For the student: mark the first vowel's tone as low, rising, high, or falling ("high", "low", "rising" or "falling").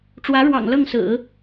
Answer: rising